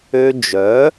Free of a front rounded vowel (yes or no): no